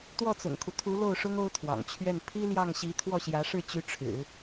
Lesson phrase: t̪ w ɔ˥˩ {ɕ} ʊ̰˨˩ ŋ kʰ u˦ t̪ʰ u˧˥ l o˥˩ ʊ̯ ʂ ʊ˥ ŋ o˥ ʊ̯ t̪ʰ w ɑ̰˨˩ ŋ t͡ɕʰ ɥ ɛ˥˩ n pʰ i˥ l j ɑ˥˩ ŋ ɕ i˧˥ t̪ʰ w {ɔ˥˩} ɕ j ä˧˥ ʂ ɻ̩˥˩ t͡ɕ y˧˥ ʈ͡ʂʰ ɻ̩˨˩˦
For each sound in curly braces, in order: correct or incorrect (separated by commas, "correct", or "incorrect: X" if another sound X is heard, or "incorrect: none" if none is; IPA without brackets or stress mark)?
incorrect: t͡s, correct